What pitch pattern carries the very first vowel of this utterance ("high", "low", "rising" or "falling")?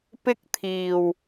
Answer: high